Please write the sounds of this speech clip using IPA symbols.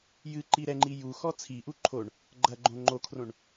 j ɨ ǃ i ɾ ɛ ŋ͡ǃ i j u x ɔ t͡sʰ i ʔ u ǃʰ o ɳ | ɡ͡ǃ ɐ ɡ͡ǃ õ ŋ͡ǃ o kʰ r õ ɳ

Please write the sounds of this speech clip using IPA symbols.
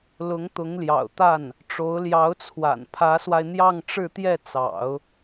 l ʊ˧˥ ŋ t̪ ʊ˧˥ ŋ l j ɑ̰˨˩ ʊ̯ t̪ a˥˩ n | ʈ͡ʂ o˧˥ ʊ̯ l j ɑ˧˥ ʊ̯ t͡sʰ w a̰˨˩ n pʰ ä˧˥ s w a˧ ɪ̯ n̪ j ɑ˥˧ ŋ ʈ͡ʂ ɻ̩˥˧ t̪ j ɛ˥˩ t͡s ɑ̰˨˩˦ ʊ̯

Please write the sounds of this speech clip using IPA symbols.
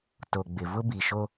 t o˨ ɡ͡b ɪ˨ v ʊ˦ b i˨ ʃ o˦

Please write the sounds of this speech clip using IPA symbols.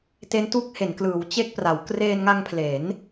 t e˦˥ n t u˦˥ k̚ h e˩˦ n k l ɯː˩˦ w t͡ɕ e˥˩ k̚ p r a˩˦ w k r eː˧ n ŋ a˧ ŋ pʰ l e˩˦ n

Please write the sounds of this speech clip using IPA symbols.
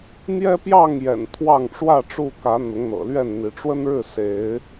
n̪ j ɛ˦ p j ɑ˥˨ ŋ j ɛ̰˨˩ n t̪ʰ w ɑ˥˨ ŋ ʈ͡ʂ w ä˥˨ ʈ͡ʂ u˥˨ k ä˨˦ n̪ ʊ˨˦ ŋ n̪ ɤ̰˨˩ l ɥ ɛ˥˨ n n̪ i˨˦ ʈ͡ʂ w ə˦ n ɻ ɻ̩˥˨ s e˨˦ ɪ̯

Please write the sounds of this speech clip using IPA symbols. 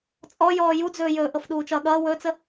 t͡sʼ ɔ j ɔː j u d͡z ɵː j ɵː ʔ ɤ f ɗ uː t͡ʃ ʌː ɠ ʌː w ɵː t͡s ə

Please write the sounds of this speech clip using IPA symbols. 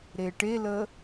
ɾ e ʈ e l ə

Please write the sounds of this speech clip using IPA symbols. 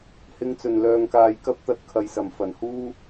h ɪ˨˧ ŋ t͡s ɵ˨˩ n l œː˨ ŋ k aː˨ j k ɐ˥ p̚ t̪ ɐ˧ t̚ kʰ ɐ˨ j s ɐ˨˩ m f ɐ˨˩ n h uː˥

